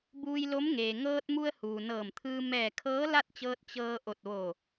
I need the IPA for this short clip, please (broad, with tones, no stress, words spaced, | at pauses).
buː˧jlo˧˥mŋeː˩ ŋɤː˧t̚mu˧ə̯ huː˩nɤː˧˩mt̪ʰɯː˧ mɛː˧˩ kʰɤː˧˥la˥˨t̚t͡ɕɤː˧t̚ t͡ɕɤː˧ ʔo˧˩t̚ʋo˧˩